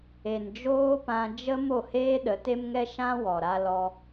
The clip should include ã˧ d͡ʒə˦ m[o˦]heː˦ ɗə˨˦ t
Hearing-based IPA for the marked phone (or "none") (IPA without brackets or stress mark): o˦˨